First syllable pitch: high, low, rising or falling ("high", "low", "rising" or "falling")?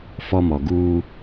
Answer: high